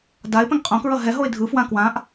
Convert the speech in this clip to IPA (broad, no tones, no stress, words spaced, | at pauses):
daɪ̯pɛ̃ŋ qʼõkɹʌ ɦɛ ɦoɪ̯dʱɯfwã kwãʔ